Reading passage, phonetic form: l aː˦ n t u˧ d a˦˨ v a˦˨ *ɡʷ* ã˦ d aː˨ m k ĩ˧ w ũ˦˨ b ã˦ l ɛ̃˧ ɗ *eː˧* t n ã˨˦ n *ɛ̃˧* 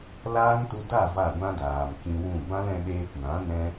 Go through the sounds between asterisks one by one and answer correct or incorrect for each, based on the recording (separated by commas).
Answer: correct, correct, incorrect